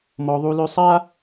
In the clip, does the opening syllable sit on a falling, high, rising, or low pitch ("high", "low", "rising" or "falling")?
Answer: high